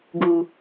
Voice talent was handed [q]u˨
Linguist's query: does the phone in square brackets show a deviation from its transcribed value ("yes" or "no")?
yes